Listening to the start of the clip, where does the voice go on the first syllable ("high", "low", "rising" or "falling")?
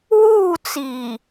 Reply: falling